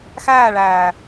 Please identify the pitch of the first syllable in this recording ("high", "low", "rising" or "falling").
falling